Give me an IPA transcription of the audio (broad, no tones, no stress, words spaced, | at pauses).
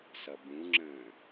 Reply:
sʌbũŋ͡ǁə̃ː